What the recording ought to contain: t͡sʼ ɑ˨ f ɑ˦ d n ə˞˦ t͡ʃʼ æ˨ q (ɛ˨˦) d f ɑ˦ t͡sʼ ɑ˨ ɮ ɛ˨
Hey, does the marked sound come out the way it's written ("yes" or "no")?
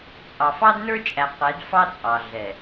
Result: yes